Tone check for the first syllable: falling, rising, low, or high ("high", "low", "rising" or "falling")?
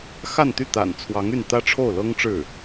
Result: falling